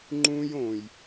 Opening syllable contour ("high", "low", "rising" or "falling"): high